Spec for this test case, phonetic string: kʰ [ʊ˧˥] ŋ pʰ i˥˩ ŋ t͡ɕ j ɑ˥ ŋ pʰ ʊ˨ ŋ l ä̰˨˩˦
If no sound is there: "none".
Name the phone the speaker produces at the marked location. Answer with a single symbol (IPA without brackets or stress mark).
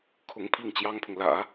ʊ˧˥